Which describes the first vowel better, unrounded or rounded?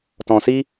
rounded